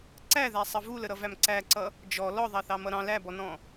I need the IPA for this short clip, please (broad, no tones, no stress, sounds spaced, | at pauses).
ǀ æ ð æ sˤ ʌ v u l ə ɾ ʌ v æ m ǀ æ ǀ ʌ | d͡ʒ ɔ l ɔ ðˤ ɑ θ ɑ m ʌ ɾ ɑ̃ l æ b ɔ n ɔ̃